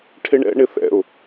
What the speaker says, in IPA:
ʈʰ ɪ ɳ ɛ̰ ɳ ɪ θ ɛ̰ ʊ̯

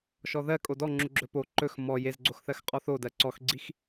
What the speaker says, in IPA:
ʃ ɔ ð ɜ kʼ o d ɔ ŋ͡ǁ u ɡ͡ǁ ɵ p o ǃ ɵ x m ɔ j e z ɡ͡ǀ o x θ ɜ x qʼ ɔ θ o d ɜ ǀ ɔ x ɡ͡ǀ i x

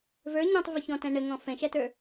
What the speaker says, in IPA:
v ə˞ ɲ ɔ̃ tˤ v ə ç ɔ̃ t æ̃ ɳ ə ŋ ɔ̃ f ɛ̃ ʃ æ t ə˞

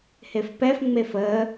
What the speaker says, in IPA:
h e f p ɛ f ŋ͡m e f ə

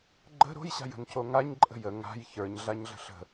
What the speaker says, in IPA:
ɡ͡ǃ ə̤ ɾ o̤ j ɕ a̤ j ə̤ n c o ŋ a ɲ ǃʼ ə̤ j ə ŋ a̤ j ç ə˞ ɲ ɮ a ɲ ɮ ə̤ ɬ ə̤

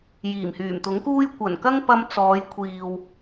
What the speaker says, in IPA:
j iː˨˩ m h yː˨˩ m t̪ ʊ˨˥ ŋ k uː˥ j kʷ ɐ˨˩ n k ɐ˥ ŋ p ɐ˧ m t͡s ɔː˨˧ j kʷʰ iː˨ w

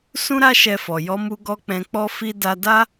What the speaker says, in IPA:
s ũ˦ ɾ a˦ ʃ ɛ˧ f ɔ˨ j ɔ˨˦ m u˧ ɡ ɔ˧ k͡p ɛ̃˧ k͡p ɔ˦ f i˧ d a˧ d a˦

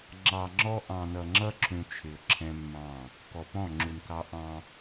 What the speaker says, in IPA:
ŋ͡ǁ ɑ˨ ŋ͡ǁ ɔ˦ ʔ ɑ̃˨ n ʌ˨ ŋ͡ǁ ʌ˦ ǁ ũ˨ t͡ʃʰ ɪ˨ ʊ̯ ǁʰ ɛ̃˦ mː ɑ̃˦˨ | k ɔ˨ p ɔ̃˦˨ ŋ͡ǁ u˨ n k ɑ˦ ʔ ɑ̃˦

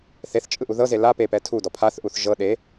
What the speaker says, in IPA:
θ e θ t͡ʃʼ ɯ ʔ u ð ɤ z e l a p e p ɛ tʰ u d ɔ pʰ a θ ʔ u θ ʒ ɤ ɗ e

